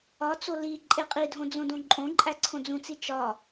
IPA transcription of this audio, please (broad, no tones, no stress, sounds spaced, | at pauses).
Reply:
ɒ t͡s o l i ǃʼ e qʼ i dʱ õ d͡z õ d õ ǃʼ õ ǃʼ æ ǀʰ õ d͡z ũ t͡s i t͡ʃ ɒ